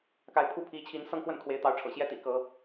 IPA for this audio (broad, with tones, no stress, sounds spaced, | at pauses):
k a˨˦ ɪ̯ pʰ u˦ pʰ i˨˦ t͡ɕʰ i˨˦ n s ɤ˥˨ ŋ x w ə˥˨ n kʰ w e˨˦ ɪ̯ t̪ ɑ˨˦ ʊ̯ ʈ͡ʂʰ ɤ̰˨˩ ɕ j ɛ˦ t̪ ḭ˨˩ k ɤ˨˦